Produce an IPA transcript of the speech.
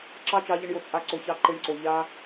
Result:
ǁɑ˦˨t͡ʃɑ˧ʎə˧ɳjo˨ t͡sʼa˧ǀo˨çɑ˧ ǃe˧ɳǀo˨ ʎa˧

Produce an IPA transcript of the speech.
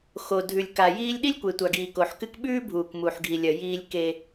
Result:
xo˨dʱʉ˨lʲka˨jiː˦lʲ ɗi˦lʲkʷe˨tʷa˨ɡiː˨ ko˨ħkɨ˦k ɓʉː˦bʱuː˨kmu˨ħɡʱi˨ lʲɐ˨ jiː˦lʲke˦

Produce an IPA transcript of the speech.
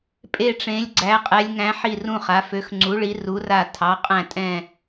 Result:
pʼe˧˩ʈ͡ʂẽ˩˧lʲɡ͡ǀæ˩˧ qʼɛ˩˧lʲŋæ̃˩˧ ħi˧˩rũ˧˩χa˩˧ fø˩˧xŋ͡ǀu˩˧ɭi˩˧ ru˩˧ra˧˩ tʰɑ˩˧qʼæ̃˧˩tʼɛ̃˧˩

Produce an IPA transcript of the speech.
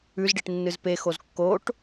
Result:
ʉzɖiʈnːɨz pexoz kːoʈ

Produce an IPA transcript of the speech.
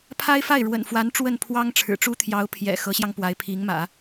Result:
pʰa˥ɪ̯fa˥˩ɪ̯ ɻwə̰˨˩nfwa˧˥n ʈ͡ʂwə˥˩npʰwɑ˥ŋʈ͡ʂʰɻ̩˨˩ʈ͡ʂu˥ t̪ʰjɑ˧˥ʊ̯ pʰjɛ̰˨˩xɤ˧˥ɕjɑ˧ŋ pwa˧˥ɪ̯pʰi˧˥ŋmä̰˨˩˦

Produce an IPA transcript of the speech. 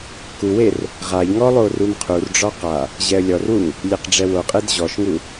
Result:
kuwer | ʁaʎŋɔ lˠorumqʰurɖ͡ʐɔ qa | ʑɛə̯lʲɔrwuŋ | lʲeqɖ͡ʐɛwoqʼed ʑɔʃŋu

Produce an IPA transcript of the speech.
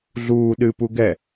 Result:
ɮuː ɗɨpu ɡɛ

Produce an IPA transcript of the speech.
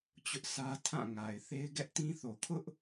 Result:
t͡ɕʊ˦ʔsä˦ tʰã˦˨ŋa˨ɪ̯θe˦ɪ̯ ɡɛ˦ʔtĩ˦θo˨ kʰʊ˦ʔ

